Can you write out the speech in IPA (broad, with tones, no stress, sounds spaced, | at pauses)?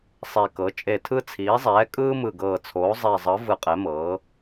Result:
sˤ e˨˩ k ɤ˩˧ t͡ʃʼ e˨˩ tʰ ɯ˧ t͡sʰ iː˩˧ zˤ ɛː˩˧ kʼ ɯː˧ m ɯ˨˩ ɡ ɤː˨˩ t͡sʰ oː˩˧ zˤ e˨˩ zˤ ɤ˩˧ v ɯ˨˩ qʼ ɛ˩˧ m ɤː˩˧